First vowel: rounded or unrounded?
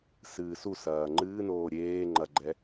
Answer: unrounded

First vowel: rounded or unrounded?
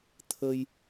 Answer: unrounded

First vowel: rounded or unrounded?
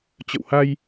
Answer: unrounded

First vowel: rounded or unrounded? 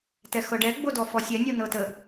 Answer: unrounded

